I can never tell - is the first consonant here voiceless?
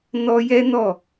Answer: no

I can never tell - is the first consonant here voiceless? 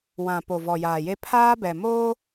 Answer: no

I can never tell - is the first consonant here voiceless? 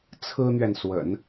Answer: yes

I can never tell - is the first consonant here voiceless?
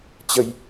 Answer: yes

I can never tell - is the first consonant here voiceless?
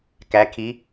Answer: yes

